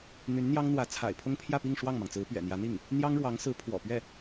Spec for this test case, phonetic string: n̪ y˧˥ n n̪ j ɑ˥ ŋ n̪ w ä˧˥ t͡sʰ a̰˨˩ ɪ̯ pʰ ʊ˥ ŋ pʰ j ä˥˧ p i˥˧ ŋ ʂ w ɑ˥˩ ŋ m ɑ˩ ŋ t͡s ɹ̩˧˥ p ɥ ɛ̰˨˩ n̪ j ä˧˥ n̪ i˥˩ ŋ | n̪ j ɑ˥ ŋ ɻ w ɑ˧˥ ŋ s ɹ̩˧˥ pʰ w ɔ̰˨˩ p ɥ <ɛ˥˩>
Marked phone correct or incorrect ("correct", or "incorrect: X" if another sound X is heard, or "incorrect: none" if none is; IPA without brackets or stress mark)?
correct